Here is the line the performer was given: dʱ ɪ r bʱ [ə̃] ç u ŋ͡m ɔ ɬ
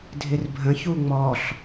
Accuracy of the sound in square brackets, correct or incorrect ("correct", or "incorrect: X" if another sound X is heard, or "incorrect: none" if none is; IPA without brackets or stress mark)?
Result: correct